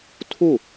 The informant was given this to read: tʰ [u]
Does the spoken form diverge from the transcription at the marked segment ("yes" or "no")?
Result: no